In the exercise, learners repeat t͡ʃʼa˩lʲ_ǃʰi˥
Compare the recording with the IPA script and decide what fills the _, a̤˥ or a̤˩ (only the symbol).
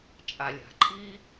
a̤˩